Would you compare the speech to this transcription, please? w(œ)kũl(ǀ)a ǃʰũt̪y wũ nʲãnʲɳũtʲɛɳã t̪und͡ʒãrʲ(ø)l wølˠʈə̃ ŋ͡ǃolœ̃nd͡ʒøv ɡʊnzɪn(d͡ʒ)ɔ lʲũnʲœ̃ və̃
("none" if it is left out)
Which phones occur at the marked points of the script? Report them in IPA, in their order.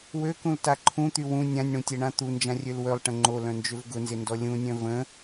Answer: ø, t, ø, d

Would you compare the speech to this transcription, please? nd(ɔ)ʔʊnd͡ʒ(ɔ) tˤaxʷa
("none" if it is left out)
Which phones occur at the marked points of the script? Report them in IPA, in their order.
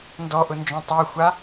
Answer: ɔ, ɔ̃

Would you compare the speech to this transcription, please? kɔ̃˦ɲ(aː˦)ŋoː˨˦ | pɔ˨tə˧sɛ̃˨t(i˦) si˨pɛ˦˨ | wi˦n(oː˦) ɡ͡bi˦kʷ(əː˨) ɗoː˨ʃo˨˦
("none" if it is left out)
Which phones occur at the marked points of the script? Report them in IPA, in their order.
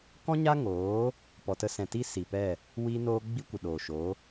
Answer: a˦, i˦, oː˦, ə˨

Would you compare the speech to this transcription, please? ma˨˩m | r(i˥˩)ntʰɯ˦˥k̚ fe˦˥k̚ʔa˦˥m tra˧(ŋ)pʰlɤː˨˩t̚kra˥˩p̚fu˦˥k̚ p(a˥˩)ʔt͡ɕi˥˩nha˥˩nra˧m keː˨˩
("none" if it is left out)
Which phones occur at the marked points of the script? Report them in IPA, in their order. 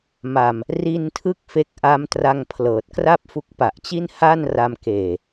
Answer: i˧, ŋ, a˨˩

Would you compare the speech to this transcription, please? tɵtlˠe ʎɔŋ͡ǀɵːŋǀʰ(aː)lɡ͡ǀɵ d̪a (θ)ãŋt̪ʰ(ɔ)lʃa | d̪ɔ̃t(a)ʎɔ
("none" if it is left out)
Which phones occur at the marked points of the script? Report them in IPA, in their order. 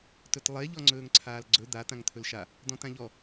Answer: aː, t̪, ɵ, ã

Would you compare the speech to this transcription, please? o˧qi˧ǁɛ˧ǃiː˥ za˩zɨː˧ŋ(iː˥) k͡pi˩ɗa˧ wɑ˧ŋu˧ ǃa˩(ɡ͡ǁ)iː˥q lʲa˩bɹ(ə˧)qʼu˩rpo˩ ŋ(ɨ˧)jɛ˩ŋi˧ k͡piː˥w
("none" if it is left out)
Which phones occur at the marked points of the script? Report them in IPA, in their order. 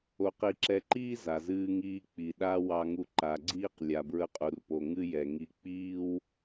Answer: iː˧, ɡ͡ǀ, ə˧, ɨ˥

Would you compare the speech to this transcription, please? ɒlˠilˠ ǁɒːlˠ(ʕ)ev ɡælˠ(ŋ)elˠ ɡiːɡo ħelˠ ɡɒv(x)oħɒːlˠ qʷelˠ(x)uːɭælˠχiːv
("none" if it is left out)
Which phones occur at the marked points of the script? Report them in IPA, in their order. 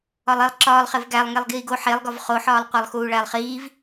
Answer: χ, ŋ, χ, x

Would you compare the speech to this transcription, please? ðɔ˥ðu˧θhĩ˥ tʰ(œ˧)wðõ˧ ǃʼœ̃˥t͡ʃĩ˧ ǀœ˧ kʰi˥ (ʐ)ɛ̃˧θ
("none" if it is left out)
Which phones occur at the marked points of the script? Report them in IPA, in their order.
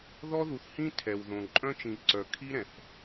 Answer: ɛ˧, ɾ

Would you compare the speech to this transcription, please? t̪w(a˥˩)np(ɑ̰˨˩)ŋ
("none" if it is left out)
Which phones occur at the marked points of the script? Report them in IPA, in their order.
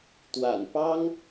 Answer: a̰˨˩, ɑ˥

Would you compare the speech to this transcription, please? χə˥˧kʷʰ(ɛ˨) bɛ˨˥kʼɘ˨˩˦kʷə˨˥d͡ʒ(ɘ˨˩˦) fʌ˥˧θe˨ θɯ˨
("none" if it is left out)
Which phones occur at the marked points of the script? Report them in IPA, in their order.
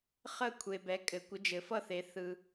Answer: e˨, ɘ˨˩˦

